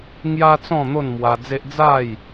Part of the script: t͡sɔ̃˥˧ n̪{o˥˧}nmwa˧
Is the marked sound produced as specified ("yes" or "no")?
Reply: yes